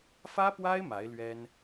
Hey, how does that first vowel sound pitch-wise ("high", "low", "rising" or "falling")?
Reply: high